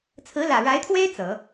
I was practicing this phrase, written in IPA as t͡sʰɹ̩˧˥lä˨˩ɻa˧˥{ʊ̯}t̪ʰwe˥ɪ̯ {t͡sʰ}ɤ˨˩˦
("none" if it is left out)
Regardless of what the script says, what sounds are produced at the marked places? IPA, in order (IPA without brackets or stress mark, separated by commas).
ɪ̯, t͡s